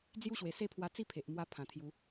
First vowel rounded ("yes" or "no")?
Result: yes